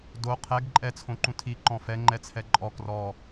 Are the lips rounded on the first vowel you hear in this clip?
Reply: yes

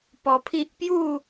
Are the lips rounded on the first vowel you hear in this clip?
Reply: yes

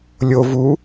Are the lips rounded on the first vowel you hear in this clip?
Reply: yes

